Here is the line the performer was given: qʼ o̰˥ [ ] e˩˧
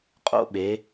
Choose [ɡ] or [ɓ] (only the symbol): ɓ